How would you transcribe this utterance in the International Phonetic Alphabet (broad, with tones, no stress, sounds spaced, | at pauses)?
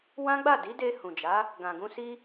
w ã˦ ɡ͡b a˦˨ d i˨˦ d e˧ h ũ˨ d͡ʒ a˨˦ | ɡ ã˨ ɡ ũ˧ s i˦